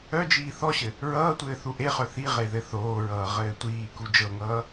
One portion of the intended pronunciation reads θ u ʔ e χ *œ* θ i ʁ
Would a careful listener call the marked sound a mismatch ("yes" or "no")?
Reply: no